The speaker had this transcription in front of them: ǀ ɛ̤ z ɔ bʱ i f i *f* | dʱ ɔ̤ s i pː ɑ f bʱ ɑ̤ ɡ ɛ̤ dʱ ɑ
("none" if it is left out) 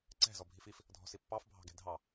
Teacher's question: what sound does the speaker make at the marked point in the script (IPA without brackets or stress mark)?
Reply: f